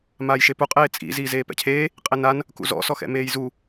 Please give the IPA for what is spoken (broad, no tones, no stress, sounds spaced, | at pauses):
m aː j ʃ e p u qʼ eː t͡sʼ ḭ z iː z eː p ɛ̰ cʰ eː | qʼ e n a n | k ṵ z ɔ̰ s ɔ x ɛ̰ m eː j z u